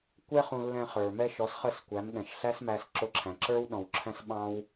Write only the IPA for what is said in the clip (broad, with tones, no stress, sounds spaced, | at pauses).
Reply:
kʷ ɛ˥ χ ũ˧ lː ɛ̃˧ χ ə˞˩ m ɛ˧ ʃ ɔ˩˥ s χ ə˥˩ s kʷ æ˩˥ m ɠ ɛ̃˩ ʃ ɬ æ˥ s m æ˧ s ǁ ʊ˧ ǁʰ æ̃˩ ǁ ə˞˥ w ɗ ɔ̃˩ w ǁʰ æ̃˧ s ɓ ɑ̃˥ w